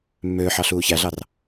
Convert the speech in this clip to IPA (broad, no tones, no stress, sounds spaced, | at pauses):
mː øː ħ ɑ ɬ uː ç æ ɮ ɑ r